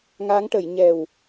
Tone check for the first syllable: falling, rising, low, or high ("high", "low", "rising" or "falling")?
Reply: rising